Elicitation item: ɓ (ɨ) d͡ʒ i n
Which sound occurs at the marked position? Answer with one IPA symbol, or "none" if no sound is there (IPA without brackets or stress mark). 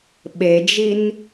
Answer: e